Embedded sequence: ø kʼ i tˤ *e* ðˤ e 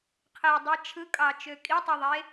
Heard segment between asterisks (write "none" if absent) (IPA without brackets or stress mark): y